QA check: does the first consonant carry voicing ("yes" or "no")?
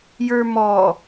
yes